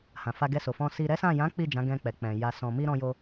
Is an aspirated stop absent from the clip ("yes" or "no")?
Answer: yes